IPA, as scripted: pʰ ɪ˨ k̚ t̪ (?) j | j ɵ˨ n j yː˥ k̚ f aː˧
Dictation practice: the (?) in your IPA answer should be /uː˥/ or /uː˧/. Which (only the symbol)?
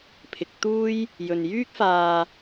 uː˥